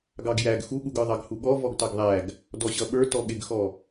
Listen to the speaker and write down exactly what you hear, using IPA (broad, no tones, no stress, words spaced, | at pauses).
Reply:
ɡɑɡjæɡ xuɠuɡə˞ ðˤɑɡhuɠɔ vɔɡtɑɡðˤæɡ | dɔɕʌɓə˞ tɔɠɪɡxɔ